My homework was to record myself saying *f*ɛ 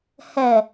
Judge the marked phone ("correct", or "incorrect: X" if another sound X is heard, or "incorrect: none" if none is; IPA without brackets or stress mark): incorrect: h